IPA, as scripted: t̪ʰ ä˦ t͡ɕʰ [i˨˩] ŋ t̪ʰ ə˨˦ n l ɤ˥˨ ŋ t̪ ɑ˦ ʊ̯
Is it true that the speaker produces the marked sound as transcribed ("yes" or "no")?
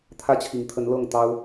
yes